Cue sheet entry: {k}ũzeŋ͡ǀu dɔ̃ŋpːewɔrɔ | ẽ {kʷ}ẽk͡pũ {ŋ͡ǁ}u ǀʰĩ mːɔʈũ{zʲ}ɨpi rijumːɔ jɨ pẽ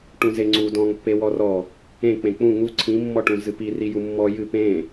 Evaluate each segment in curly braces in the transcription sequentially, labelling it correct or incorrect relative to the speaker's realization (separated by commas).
incorrect, incorrect, incorrect, incorrect